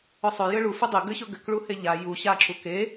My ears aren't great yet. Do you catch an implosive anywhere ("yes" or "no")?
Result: no